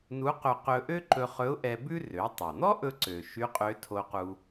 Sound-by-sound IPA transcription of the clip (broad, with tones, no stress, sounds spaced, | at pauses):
n u˧˥ q ɵ˧ q ɵ˧ ʔ ø˥ ǃ ɵ˧ χ ɵ˧˥ ʊ̯ ʔ ɛ˧ b ʉ˥ r ø˩˧ tˤ o˩ n̪ ɔ˥ ʔ ɵ˥ ǀ ø˩ ʃ y˧˥ qʼ ø˧˥ tʰ o˧ q u˧